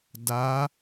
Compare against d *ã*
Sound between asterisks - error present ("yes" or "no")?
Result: yes